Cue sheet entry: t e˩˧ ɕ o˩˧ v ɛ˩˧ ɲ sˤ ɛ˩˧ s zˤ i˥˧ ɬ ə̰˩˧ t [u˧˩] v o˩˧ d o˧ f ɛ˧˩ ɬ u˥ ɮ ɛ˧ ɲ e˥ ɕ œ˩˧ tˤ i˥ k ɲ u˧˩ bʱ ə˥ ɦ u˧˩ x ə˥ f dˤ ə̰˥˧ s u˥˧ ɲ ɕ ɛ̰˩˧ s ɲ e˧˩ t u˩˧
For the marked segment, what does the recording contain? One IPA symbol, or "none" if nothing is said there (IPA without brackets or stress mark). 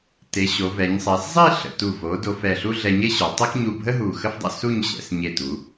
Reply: u˧˩